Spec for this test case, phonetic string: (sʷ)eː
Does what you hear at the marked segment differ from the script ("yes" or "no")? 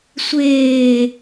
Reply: no